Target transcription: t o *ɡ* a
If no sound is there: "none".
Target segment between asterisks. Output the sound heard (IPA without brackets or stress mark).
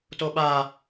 ɓ